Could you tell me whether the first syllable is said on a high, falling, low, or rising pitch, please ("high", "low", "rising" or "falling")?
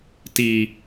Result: low